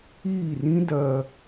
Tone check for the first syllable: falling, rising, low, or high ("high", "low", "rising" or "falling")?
falling